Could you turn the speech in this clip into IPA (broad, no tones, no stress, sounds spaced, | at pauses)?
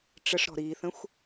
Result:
ʈ͡ʂ ə ʂ ɾ ɔ̤ ɾ iː θ ə̃ xʷ